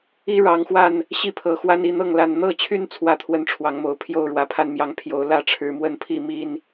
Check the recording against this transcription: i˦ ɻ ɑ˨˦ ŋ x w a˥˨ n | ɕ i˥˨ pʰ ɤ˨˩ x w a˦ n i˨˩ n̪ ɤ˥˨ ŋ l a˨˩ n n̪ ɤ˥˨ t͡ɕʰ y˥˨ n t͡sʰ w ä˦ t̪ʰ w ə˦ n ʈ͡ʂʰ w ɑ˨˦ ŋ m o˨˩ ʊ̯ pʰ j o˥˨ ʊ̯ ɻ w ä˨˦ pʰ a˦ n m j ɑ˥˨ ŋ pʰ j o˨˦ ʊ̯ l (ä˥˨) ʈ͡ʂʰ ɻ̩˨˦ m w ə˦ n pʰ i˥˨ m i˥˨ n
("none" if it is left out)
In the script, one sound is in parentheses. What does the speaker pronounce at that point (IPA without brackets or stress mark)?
ä˥˨